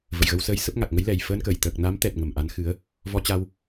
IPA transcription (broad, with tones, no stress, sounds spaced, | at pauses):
v ə̰˧˨ j ɣ ə˧ w s əː˧ j s ə˦˥ p̚ ŋ a˨˩ k̚ ŋ ə˨˦ j l ɛ˨˩ j f əː˧ n k əː˧˩ j t̪ əː˨˩ k̚ n a˨˦ m t̪ ɛ˨˩ t̚ ŋ ə˨˩ m ʔ a˨˦ n x ɨ˨˦ ə̯ | v ɔ˧ t͡ɕ a˧ w